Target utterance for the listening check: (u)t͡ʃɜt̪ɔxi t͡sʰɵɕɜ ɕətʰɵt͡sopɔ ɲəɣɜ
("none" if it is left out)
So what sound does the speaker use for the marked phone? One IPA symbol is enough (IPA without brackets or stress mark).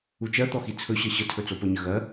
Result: u